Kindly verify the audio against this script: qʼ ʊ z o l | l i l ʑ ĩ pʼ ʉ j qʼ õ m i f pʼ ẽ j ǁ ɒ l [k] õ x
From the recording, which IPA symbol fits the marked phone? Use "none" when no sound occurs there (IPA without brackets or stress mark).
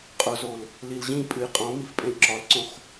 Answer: ǀ